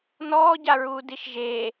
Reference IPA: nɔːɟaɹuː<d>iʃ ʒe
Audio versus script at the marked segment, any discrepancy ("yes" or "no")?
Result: no